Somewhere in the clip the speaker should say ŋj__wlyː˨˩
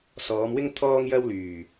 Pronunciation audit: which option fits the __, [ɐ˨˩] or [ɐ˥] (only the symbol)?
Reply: ɐ˥